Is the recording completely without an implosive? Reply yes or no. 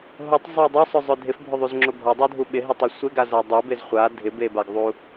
no